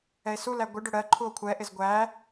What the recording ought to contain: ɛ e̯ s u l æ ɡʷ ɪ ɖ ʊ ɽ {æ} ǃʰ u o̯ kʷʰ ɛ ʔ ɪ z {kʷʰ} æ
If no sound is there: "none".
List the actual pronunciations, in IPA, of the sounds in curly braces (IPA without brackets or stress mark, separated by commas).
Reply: ɜ, ɡʷ